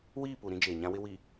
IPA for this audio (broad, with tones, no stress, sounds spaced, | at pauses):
w iː˦˨ p u˨ ɾ ĩ˦ d͡ʒ eː˨ ɲ ã˦ w ɪ˦ w i˨